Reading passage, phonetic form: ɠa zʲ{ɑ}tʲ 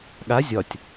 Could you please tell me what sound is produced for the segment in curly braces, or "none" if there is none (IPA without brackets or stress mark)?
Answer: ɒ